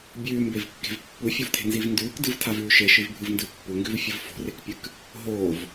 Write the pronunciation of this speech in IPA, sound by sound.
bʲ ʉː m b e v kː e̤ v pː u fʲ u v tʰ e̤ n z i v n d ʉː k d ɨ v tʰ a v ʉː ʃ e ʃ ɨ v bʱ ɨ v n d ɨ pː u ŋ ɡ ʉ v fʲ ɨ v f o̤ r e k pʲ ɨ k | ɦ oː v

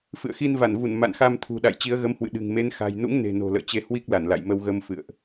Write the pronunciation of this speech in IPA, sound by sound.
f ɨ̰˧˨ ə̯ x i˧ n v a˧˩ n v u˧˩ n m a̰˧˨ n x a˧ m t̪ʰ ṳ˨˩ ɗ a̰˧˨ j t͡ɕ i˨˦ ə̯ ɣ ə˨˦ m h w ɨ̰˧˨ ɗ ɨ̤˨˩ ŋ m e˨˦ n x a̤˨˩ j n ṵ˧˥ ŋ n e̤˨˩ n o̤˨˩ l ə̰ː˧˨ t͡ɕ e˧ h w i˦˥ k̚ l a˧˩ n l a̰˧˨ j m ə˧ w ɣ ə˧ m f ɨ̰˧˨ ə̯ ʔ

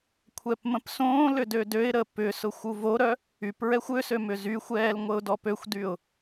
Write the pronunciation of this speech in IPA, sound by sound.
kʷʰ ɛ p m ə̃ p s õː l ʏ d ø d ø ɪ̯ ɾ ə p ʏ s ʊ xʷ u v o ɾ œ | y p ɹ ɛ xʷ ʏ s ø m ʏ z y xʷ ɛː l ŋʷ ə ʊ̯ d ɔ p ø xʷ d y ʊ̯

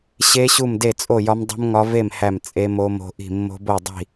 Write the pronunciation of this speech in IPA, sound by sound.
ɕ e˦˥ ɕ u˥˨ m d e˥˨ t͡sʼ o˥˨ j ɒ˦˥ m dˤ ṳ˦˥ m ŋ ɒ˦˥ v e˥˨ m h æ˥˨ m t͡sʼ e˦˥ m o˦˥ m o̤˦˥ ʔ i̤˥˨ mː o̤˦˥ b o˥˨ dˤ i̤˥˨

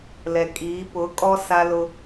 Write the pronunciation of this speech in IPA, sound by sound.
l ɛ˨ kʼ iː˨˦ p ʊ˨˦ kʼ ɔ˦ s a˦ l ʊ˦

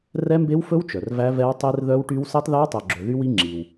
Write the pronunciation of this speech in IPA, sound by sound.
r ɛ˦˥ m b e˦˥ w f ɵ˦˥ w t͡ʃ œ˨ r v æ˦˥ v ɛ˦˥ w tˤ e˦˥ r ð œ˦˥ w ʈ y˦˥ w s e˦˥ tˤ ð æ˦˥ w tˤ œ˨ ɡ͡ǁ ɵ˨ ð y˦˥ w i˦˥ ŋ͡ǁ i˨ w

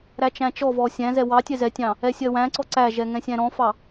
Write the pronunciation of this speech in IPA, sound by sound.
ɾ æ t͡ʃ æ̃ t͡ʃ ɔ v ɔ sʲ æ̃ z ɛ w ɑ tʲ ɛ z ɛ tʲ ɑ̃ | ɛ sʲ ɜ w æ̃ ǀ ɔ ǀ æ ʒ ɛ ŋ ɛ̃ sʲ æ̃ ɾ ɔ̃ f ɑ

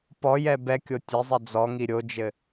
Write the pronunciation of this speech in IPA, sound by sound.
p ɔ j ɛ b ɛ kʲ o tʲ ɛ zˤ ɛ d͡z ɔ ŋ i ɾʲ o d͡ʒ ɘ

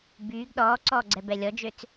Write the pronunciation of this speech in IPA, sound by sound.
b yː ɡ ɗ ɔː ǀ ɔː ɡ͡ǀ ɛ b ɛ lʲ ɔ d͡ʒ ø t͡s

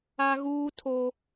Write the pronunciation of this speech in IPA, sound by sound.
a˦ ɣ uː˦ tʰ o˦

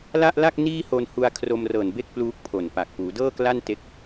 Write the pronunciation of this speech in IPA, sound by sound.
l a˥˩ ʔ l a˥˩ k̚ n iː˥˩ h o˧ n h u˧ a̯ kʰ r o˧ m r ɤː˨˩ n b e˥˩ k̚ p l uː˦˥ k̚ pʰ o˨˩ n p a˨˩ k̚ p uː˩˦ d ɤː˥˩ k l a˥˩ n t e˦˥ k̚

